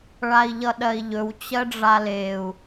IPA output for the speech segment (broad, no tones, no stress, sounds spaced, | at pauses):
ɭ a i̯ ʎ ʌ ɗ ɜ i̯ ʎ ɵ w t͡ɕ ɜ ɖ͡ʐ a l e u̯